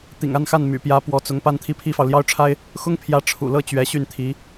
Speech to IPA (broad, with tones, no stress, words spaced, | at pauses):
t̪ḭ˨˩ŋa˥˧nxa˥˩n my̰˨˩pjä˧˥ pwɔ˧˥t͡sʊ˧˥ŋ pa˥nt̪ʰi˥pʰi˥fɑ˨ʊ̯ ljɑ˥ʊ̯ʈ͡ʂʰa˥ɪ̯ | xʊ˥ŋpʰjä˧˥ ʈ͡ʂʰṵ˨˩lɤ˥˩ t͡ɕɥɛ˧˥ɕy˥˩nt̪ʰi˧˥